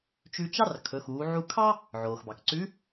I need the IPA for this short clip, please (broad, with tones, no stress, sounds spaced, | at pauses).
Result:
t͡ʃ ʉ˧ t͡ʃ ɑ˥ r kʰ ɵ˩˧ x uː˩˧ ʕ u˧ kʰ ɑ˥ | ʕ oː˩ x b ɑ˩ k ǀ ʉ˧˥